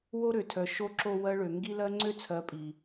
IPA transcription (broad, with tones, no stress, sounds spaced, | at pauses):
w o˦ ɾ ø˨ tʰ œ˨ ʃ o˧ ǁ o˧ w ɜ˦ ɭ ø˨ ŋ ɡ i˦ l ɜ˦ ŋ͡ǀ ø˦ t͡sʰ ɜ˨˦ pʼ i˨